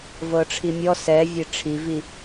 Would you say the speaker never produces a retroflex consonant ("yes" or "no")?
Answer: no